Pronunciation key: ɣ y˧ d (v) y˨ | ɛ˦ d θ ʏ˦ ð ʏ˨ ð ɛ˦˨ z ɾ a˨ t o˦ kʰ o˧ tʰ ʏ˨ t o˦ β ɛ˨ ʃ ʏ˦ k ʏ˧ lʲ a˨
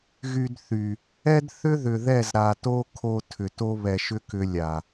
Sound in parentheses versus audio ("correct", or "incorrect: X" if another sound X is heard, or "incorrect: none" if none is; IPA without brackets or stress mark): incorrect: θ